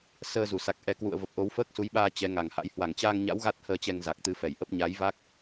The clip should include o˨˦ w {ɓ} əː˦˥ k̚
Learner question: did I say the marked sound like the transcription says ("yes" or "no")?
no